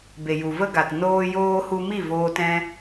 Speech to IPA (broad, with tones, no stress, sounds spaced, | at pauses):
b e˨ j u˨ v ə˧ ɡ a˨ t n oː˧ j oː˧ h u˧ m i˦˨ v oː˦ t ɛ̃˦